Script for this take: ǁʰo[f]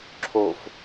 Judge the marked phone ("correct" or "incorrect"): correct